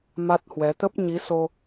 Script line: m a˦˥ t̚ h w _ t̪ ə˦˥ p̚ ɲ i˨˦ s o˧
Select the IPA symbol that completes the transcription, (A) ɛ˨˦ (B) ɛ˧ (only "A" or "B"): A